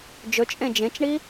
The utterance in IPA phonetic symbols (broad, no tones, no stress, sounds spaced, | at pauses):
d͡ʒ ɵ t͡ʃʼ ẽ d͡ʒ ẽ t͡ʃ ɳ i